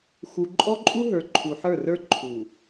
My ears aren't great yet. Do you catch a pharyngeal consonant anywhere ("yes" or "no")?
yes